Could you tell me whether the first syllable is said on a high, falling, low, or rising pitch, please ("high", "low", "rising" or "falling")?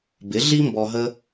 rising